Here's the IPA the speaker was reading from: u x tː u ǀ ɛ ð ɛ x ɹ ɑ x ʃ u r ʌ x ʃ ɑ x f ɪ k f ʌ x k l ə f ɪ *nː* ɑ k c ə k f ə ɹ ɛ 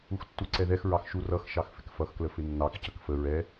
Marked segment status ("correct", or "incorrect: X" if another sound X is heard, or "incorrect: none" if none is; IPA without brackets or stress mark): correct